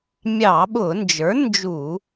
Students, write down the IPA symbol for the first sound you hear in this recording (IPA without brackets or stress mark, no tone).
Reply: mʲ